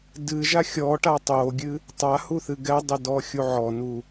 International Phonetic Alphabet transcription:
d ɨ ʒ a xʲ ɔ ʈ a tˤ o ɡʲ ɨ | tˤ a h u θ ɨ ɡ ɛ dˤ ɘ d ɔ xʲ u ʕ ɔ n u

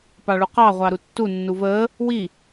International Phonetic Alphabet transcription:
p ɑ ɭ u q ɑ ʁʷ ɑ ɾ u tː u nː u v əː | w i

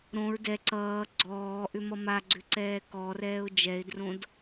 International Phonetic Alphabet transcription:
ɾ õ ɹ d ɛ ǀ ʌː ɡ͡ǀ ɔː ʔ ʏ m ʌ m a ɡ͡ǀ ʏ ǀ ɛː k ɔ r ɛː ʊ̯ d͡ʒ ɛ ɪ̯ d r õ d

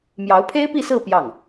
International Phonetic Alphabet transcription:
m j ɑ˧˥ ʊ̯ pʰ e˥ ɪ̯ p i˥˧ s ɹ̩˥˧ p j ɑ˥˩ ŋ

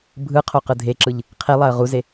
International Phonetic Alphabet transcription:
bʱ ɯ qʰ o q ɯ dʱ e ǁ ɯ ʎ | qʰ i lˠ a ə̯ ʁ u z e

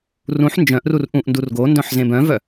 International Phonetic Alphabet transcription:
r ũ ħ n d͡ʒ œ̃ ʔ r u r ʔ ũ ʔ n d u r ɡ o n d œ̃ ħ z ẽ b œ̃ v œ

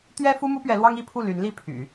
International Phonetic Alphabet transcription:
t̪ ɥ ɛ˥ f u˥ m u˥ p ɥ ɛ˧˥ l w ɑ˥ ŋ i˥ pʰ u˥˩ l y˧˥ n l i˥˩ pʰ y̰˨˩˦

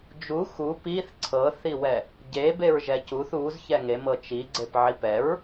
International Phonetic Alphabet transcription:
d͡ʒ u x u p i θ ǀʰ ɤ θ i w ɛ | ɟ e b e ɹ ʒ ɛ c u θ u z ç ɛ ŋ e m ɤ t͡ʃ i ɡ͡ǀ e p ʕ i p ɛ ɹ

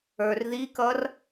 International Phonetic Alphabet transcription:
ə˞ r ð i k ʌ r

